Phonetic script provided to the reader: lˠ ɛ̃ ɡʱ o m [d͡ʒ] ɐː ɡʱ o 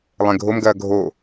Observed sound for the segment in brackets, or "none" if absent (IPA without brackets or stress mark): ɡ